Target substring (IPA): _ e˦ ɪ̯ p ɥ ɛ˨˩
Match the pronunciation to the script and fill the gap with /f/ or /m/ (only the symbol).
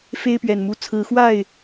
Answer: f